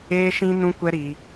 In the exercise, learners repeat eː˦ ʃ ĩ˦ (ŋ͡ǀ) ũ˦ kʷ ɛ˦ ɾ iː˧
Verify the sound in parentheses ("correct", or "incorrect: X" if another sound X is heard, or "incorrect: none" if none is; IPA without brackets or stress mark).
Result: incorrect: n